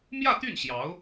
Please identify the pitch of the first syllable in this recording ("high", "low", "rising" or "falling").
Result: falling